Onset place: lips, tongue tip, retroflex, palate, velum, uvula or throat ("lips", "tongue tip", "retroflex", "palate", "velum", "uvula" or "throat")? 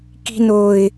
velum